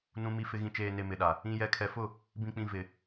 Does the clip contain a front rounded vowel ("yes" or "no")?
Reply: no